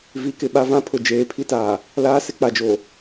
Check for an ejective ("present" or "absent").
absent